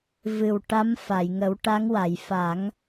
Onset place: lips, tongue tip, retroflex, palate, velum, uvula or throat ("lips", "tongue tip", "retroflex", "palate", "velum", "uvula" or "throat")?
lips